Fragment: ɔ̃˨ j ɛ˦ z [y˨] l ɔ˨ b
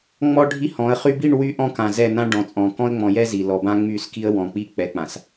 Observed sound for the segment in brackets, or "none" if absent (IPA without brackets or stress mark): i˨